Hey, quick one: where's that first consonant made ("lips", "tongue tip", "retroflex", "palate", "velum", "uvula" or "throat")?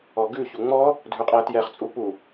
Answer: velum